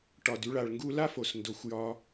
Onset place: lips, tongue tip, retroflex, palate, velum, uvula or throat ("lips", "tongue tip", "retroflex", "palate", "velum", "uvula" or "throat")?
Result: retroflex